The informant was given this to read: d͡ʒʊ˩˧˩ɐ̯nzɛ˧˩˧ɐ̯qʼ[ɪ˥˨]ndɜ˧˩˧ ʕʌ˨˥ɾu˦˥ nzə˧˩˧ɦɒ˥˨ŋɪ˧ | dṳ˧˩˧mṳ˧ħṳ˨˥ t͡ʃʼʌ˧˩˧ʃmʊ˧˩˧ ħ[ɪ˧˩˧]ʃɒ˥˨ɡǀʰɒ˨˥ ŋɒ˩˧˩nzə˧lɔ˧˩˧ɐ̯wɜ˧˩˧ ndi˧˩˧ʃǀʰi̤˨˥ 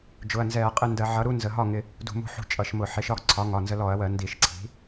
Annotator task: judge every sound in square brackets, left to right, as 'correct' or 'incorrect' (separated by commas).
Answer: correct, incorrect